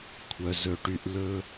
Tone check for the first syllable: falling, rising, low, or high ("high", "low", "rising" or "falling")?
low